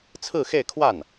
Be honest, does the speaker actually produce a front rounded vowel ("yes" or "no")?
no